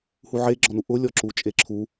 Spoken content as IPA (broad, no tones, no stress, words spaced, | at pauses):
huʕeɡ͡ǁɔnu ʔʊlʲɔǁu t͡ʃʼeǁʰu